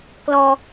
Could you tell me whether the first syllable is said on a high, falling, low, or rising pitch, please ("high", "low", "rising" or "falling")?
high